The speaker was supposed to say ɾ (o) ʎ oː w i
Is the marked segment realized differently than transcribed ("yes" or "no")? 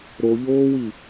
no